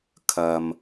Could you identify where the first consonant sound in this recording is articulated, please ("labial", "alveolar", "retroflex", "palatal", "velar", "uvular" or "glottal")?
velar